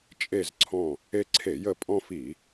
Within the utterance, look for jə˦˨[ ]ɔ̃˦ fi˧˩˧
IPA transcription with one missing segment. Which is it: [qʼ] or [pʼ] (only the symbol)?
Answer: pʼ